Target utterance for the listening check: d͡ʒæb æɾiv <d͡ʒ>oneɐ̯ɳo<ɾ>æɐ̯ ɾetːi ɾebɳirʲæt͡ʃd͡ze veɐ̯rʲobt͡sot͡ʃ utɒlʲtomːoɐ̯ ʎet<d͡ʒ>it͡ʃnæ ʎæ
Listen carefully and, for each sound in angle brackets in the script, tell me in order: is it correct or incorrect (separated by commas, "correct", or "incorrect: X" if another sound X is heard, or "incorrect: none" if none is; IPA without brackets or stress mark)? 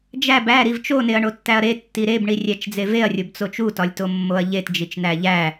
incorrect: t͡ʃ, incorrect: tː, correct